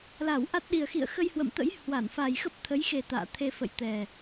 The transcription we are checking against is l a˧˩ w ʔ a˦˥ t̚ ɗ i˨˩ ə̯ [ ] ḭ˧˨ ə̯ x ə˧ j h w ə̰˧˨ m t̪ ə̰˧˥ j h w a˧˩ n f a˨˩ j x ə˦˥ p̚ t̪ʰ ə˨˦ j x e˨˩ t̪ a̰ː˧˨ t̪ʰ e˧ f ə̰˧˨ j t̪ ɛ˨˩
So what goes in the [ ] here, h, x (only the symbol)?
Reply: x